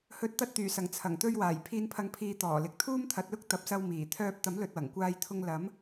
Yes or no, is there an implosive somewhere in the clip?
no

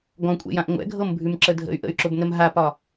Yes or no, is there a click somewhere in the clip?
yes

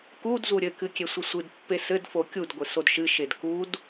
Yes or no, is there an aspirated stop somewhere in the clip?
no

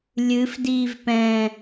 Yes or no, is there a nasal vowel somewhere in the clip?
yes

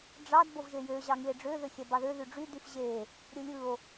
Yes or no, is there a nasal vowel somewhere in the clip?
no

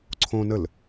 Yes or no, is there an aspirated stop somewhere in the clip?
yes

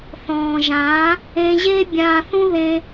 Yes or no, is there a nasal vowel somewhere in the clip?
yes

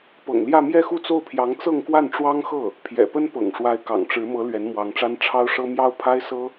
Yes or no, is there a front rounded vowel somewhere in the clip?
no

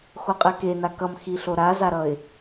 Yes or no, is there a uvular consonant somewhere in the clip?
yes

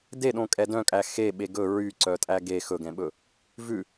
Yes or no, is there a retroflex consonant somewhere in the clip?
no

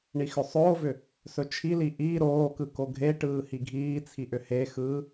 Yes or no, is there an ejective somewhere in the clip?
no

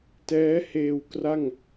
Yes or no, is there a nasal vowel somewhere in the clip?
no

